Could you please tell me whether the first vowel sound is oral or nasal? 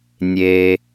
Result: oral